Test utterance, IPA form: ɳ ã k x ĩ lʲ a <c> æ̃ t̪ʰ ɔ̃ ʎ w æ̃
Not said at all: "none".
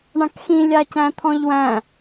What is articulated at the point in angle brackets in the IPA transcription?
c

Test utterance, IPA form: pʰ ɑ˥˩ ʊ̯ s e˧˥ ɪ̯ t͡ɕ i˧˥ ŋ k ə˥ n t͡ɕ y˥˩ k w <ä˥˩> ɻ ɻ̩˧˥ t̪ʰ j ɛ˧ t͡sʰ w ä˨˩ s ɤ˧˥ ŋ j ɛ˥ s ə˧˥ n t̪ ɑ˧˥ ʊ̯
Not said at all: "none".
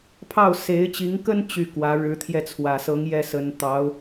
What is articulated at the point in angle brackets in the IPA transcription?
ä˧˥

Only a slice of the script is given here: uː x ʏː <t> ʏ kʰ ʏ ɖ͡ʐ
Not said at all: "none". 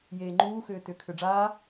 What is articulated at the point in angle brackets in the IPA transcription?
t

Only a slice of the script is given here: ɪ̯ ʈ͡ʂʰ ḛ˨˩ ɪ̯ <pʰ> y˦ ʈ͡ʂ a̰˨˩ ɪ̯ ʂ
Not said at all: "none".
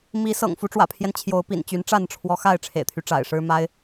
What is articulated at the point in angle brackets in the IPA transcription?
t̪ʰ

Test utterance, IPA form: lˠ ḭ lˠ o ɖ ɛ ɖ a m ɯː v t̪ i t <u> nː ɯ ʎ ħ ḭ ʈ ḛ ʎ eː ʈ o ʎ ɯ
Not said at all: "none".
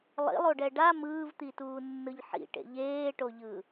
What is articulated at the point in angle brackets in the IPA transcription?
uː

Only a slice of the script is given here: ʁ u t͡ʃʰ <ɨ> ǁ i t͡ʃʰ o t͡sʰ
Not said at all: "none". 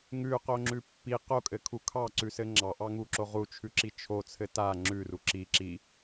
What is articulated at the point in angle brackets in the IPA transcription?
ʉ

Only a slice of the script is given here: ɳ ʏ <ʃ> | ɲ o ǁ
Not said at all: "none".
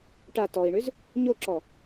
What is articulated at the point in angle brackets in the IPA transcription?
z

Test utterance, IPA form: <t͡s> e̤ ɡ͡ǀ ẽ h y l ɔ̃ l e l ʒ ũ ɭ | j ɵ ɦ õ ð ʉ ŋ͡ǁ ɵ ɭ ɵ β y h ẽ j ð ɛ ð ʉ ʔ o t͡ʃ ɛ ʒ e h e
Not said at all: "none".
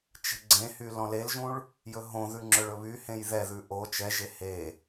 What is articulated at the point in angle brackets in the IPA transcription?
t͡ʃ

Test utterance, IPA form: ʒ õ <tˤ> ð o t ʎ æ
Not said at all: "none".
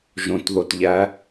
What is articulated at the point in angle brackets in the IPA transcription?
t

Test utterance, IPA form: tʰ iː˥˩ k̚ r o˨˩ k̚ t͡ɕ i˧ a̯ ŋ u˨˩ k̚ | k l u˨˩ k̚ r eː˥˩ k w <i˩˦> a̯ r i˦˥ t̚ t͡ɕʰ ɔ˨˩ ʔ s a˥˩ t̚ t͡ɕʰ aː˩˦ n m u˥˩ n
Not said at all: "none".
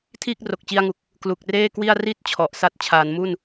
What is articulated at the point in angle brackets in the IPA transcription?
i˥˩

